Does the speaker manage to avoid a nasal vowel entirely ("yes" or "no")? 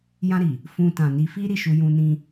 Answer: no